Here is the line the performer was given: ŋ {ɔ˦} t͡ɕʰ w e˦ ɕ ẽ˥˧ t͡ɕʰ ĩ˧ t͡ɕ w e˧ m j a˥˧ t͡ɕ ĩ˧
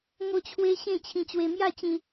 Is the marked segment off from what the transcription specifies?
yes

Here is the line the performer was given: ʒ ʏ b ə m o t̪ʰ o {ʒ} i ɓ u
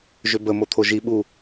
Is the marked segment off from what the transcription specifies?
no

